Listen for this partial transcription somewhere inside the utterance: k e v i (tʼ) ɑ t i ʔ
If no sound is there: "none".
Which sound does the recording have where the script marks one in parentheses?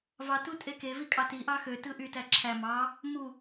kʼ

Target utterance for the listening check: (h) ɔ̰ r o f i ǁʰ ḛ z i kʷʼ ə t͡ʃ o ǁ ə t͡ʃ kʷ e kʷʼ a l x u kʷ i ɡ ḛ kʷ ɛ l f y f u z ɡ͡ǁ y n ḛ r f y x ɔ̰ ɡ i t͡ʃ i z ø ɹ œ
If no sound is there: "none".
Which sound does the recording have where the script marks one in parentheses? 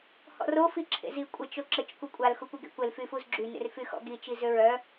h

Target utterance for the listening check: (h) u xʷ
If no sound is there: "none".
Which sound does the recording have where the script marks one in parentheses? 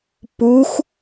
p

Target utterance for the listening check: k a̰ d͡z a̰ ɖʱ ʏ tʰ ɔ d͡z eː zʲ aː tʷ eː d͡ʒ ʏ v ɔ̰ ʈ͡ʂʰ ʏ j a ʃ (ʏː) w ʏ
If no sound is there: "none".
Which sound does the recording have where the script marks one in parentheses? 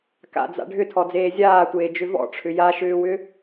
ʏː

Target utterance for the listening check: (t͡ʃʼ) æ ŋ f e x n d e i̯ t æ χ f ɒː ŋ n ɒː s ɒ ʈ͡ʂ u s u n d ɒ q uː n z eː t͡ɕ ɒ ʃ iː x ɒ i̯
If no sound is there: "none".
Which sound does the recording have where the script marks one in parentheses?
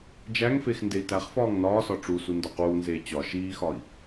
d͡ʒ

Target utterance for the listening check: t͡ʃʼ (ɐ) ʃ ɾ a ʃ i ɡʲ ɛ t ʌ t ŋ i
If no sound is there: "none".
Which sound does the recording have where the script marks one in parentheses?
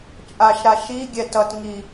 a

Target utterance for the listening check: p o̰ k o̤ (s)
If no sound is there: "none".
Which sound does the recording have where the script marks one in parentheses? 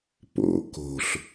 ɬ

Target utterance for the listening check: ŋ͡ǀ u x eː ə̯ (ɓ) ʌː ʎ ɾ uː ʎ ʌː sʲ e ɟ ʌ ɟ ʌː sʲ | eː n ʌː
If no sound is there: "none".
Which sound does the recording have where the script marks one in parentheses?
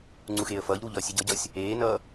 f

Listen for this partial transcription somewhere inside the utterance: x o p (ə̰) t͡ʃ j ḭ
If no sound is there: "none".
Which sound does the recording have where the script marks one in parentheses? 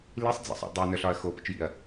ə̰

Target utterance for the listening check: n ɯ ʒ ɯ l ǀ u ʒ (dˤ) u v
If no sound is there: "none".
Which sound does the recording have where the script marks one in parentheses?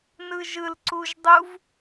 dˤ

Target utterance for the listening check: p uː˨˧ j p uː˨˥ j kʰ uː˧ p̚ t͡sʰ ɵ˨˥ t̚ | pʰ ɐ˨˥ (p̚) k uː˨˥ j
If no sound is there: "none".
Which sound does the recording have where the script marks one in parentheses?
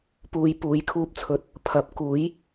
p̚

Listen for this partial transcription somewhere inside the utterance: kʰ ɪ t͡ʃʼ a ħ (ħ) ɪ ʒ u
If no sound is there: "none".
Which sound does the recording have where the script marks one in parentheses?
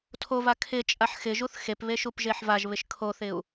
x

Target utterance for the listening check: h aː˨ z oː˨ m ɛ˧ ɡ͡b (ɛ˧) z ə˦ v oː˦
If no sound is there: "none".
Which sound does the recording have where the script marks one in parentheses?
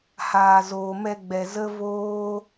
ɛ˨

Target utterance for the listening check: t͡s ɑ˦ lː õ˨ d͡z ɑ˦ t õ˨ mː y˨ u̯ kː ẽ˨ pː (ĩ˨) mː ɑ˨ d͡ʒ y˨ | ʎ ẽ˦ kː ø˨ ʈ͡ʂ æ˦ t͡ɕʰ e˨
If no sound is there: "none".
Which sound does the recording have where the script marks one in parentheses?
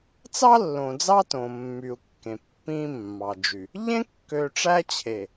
ĩ˦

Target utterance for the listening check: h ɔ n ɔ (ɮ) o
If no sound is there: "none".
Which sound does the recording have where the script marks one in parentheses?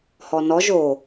ʒ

